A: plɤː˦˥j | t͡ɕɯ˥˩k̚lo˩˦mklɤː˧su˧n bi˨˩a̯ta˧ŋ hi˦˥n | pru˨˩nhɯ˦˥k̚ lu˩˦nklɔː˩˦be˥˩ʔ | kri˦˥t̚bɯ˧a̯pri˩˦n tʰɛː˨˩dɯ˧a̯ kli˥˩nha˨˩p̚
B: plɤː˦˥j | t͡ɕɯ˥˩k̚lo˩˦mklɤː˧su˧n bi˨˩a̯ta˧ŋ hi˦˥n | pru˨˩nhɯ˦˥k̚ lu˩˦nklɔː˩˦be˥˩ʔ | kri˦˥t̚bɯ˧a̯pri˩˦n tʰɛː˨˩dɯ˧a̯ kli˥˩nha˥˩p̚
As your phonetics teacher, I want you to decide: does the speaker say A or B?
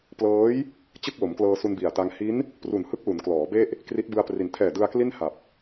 A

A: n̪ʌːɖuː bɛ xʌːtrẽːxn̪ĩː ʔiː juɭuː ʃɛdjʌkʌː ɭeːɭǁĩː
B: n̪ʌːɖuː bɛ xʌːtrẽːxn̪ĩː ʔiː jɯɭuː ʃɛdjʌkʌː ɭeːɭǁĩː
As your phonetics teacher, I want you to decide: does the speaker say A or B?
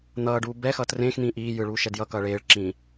B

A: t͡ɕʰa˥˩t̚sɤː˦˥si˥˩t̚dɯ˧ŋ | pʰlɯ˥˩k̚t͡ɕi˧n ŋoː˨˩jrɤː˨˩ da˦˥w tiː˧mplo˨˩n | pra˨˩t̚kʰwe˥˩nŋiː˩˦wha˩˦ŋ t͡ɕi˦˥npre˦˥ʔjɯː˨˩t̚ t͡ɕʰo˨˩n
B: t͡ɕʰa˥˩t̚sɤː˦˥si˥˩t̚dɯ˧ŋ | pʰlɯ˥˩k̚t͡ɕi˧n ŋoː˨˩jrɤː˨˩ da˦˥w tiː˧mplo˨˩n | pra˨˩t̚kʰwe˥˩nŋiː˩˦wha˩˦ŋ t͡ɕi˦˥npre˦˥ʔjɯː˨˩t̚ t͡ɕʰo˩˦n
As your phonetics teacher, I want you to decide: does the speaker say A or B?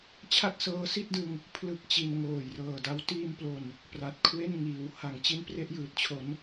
B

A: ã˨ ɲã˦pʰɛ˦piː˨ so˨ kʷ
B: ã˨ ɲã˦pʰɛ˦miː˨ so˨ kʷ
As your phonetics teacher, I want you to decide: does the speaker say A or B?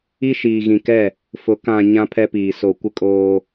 A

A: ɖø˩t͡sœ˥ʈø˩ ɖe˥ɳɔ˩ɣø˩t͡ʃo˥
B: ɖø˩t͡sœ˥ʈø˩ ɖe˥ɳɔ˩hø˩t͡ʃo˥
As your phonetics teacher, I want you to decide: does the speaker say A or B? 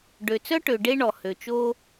B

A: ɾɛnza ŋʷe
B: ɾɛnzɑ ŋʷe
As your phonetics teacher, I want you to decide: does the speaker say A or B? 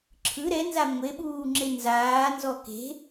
A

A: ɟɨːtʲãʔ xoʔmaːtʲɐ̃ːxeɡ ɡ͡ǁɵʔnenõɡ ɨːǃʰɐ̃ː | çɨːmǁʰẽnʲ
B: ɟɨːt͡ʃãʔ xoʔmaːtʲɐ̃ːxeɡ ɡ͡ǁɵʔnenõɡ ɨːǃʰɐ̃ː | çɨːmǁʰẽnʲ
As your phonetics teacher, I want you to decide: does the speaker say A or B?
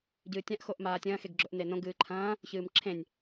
A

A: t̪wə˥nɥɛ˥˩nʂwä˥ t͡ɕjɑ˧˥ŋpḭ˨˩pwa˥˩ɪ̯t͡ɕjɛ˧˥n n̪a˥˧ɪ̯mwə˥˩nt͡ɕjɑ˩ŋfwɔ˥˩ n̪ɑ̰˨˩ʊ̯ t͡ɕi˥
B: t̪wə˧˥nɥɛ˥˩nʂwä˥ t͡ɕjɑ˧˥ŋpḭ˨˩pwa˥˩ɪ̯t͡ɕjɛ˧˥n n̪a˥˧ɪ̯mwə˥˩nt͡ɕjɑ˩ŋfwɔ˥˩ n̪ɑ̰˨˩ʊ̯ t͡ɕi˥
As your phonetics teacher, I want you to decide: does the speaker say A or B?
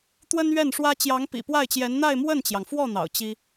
A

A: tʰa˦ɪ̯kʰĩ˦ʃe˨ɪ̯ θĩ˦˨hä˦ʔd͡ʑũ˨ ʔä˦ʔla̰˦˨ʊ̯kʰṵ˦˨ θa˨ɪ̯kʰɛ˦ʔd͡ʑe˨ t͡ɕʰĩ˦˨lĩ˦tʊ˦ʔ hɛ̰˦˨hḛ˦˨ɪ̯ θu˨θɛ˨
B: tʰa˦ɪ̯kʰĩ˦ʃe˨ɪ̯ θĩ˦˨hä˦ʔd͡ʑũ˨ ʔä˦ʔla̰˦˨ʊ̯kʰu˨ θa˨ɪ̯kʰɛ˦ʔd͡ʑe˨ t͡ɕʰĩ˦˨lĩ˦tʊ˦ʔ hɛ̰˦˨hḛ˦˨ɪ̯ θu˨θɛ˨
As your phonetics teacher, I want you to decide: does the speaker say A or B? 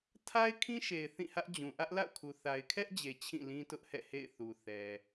B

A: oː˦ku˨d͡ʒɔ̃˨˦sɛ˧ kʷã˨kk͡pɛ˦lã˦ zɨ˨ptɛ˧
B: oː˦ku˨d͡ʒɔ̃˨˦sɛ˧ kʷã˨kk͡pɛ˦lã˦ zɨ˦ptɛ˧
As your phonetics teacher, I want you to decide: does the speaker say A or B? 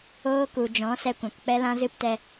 B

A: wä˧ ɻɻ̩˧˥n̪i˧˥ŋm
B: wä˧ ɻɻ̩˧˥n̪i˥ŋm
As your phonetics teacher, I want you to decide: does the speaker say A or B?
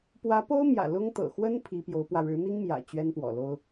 B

